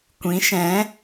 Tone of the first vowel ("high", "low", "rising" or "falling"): rising